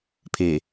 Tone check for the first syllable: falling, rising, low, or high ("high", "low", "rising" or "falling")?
low